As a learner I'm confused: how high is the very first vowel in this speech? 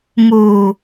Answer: high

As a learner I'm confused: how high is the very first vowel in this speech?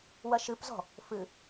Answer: low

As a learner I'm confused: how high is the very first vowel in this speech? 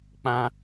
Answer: low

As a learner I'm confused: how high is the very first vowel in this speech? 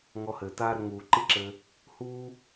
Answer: mid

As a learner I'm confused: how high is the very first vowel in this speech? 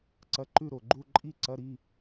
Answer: low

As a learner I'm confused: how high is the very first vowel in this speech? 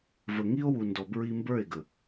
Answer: mid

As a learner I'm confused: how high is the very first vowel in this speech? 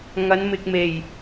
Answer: low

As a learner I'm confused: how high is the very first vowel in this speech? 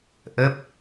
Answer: mid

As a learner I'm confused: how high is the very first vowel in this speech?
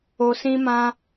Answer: mid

